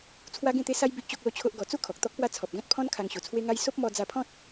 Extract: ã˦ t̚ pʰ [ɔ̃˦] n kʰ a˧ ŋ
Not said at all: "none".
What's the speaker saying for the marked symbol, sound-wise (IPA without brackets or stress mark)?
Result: ɔ̃˦